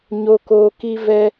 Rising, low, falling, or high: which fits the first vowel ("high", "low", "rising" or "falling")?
high